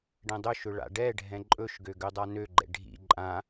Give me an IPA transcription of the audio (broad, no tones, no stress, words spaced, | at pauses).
ɖɛ̃dˤɵʃɵ ɭa̰ɖɛɖʱɛ̃ ǃʼɵʃɡø ɡødˤanøɡ͡ǃɛ̰ ɖʱḭ ǃʼã